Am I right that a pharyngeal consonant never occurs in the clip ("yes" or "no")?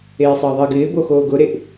yes